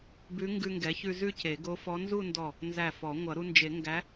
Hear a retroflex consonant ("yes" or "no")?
no